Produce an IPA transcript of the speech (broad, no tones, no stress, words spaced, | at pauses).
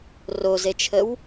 rozet͡ʃʰəw